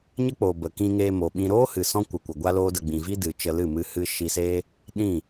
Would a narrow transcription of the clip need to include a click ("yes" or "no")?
no